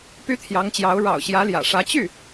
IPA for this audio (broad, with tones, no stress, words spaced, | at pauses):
py˥t̪ʰjɑ˧˥ŋt͡ɕjɑ˧˥ʊ̯ ɻɑ̰˨˩ʊ̯ɕjä˧˥ljä̰˨˩ʂä˧˥ t͡ɕy˥˩